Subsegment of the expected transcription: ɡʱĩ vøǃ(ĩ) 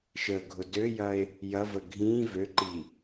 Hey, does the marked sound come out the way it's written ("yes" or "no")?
no